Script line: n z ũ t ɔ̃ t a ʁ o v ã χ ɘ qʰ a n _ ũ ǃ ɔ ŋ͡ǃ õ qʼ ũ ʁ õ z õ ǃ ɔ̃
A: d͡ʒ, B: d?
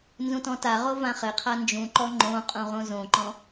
A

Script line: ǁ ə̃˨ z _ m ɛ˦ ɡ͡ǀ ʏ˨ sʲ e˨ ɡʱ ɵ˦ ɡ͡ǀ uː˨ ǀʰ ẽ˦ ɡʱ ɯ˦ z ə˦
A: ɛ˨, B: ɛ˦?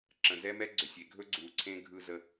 B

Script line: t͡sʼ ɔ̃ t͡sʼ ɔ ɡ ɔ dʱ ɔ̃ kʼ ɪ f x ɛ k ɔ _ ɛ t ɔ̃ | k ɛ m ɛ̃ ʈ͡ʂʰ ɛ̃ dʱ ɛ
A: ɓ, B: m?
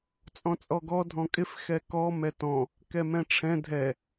B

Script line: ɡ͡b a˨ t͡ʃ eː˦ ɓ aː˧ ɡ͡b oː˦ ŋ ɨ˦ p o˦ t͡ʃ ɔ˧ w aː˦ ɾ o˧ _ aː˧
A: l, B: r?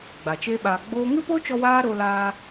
A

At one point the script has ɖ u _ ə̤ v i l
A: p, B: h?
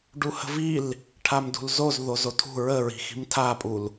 B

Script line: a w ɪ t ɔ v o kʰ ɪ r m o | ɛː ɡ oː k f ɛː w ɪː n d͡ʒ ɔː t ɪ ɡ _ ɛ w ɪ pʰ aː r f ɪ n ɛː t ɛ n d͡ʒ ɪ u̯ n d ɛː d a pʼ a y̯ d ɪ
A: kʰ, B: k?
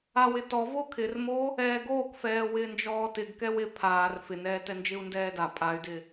B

